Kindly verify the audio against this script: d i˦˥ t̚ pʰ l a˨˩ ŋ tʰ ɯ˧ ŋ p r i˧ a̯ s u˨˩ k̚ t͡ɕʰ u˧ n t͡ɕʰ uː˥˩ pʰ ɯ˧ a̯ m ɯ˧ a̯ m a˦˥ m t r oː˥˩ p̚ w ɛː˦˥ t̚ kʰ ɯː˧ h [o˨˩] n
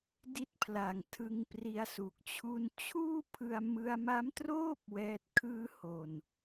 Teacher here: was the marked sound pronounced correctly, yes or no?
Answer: yes